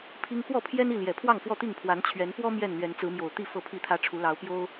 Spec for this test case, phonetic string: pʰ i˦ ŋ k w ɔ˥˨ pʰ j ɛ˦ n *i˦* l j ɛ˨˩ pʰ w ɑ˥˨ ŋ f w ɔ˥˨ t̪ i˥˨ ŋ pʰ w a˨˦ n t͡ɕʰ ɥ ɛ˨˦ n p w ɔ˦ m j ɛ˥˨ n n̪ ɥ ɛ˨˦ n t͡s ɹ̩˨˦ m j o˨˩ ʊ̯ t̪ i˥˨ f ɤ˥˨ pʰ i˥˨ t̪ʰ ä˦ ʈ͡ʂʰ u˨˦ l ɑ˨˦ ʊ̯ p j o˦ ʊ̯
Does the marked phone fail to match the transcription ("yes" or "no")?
yes